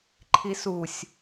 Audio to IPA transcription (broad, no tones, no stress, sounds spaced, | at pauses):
ǃʰ i s u sʲ